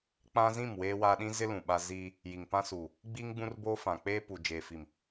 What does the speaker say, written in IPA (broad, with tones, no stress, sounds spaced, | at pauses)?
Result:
k͡p ã˦ z ĩ˦˨ m w eː˦ w a˦ ɗ ĩ˦ z ɪ˦ l ũ˨ ɓ a˦ z iː˦ | j i˨ ŋ p ã˦ s uː˨ | ɡ͡b iː˦ ŋ ɡ͡b ũ˦ r b oː˦ f ã˨ k͡p eː˦ p u˨ d͡ʒ eː˨ f i˨ m